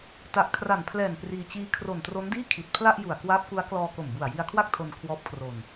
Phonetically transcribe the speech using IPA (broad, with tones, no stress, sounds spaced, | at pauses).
t a˨˩ ʔ kʰ r a˨˩ n pʰ l ɛː˨˩ n p r iː˧ t͡ɕ iː˦˥ kʰ r o˨˩ n t r o˦˥ n d iː˥˩ kʰ i˨˩ t̚ pʰ l a˥˩ ʔ j u˨˩ a̯ k w aː˦˥ p̚ k u˦˥ a̯ k l ɔː˧ k o˨˩ m b u˨˩ a̯ j i˧ a̯ kʰ w a˥˩ k̚ tʰ o˧ n kʰ w ɔː˦˥ p̚ kʰ r o˧ n